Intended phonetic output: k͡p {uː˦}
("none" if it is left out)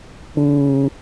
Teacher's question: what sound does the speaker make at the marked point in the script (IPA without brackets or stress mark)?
uː˦